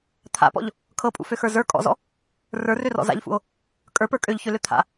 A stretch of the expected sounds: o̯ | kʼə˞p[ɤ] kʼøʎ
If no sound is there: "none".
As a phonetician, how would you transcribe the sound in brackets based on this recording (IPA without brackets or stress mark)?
ə˞